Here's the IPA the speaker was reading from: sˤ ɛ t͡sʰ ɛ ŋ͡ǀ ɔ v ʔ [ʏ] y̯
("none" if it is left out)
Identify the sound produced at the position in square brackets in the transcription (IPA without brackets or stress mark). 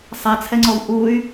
u